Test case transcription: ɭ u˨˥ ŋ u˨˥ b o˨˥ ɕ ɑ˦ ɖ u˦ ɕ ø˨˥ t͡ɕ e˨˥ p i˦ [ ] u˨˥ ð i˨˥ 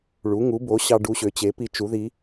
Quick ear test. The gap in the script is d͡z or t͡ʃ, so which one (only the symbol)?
t͡ʃ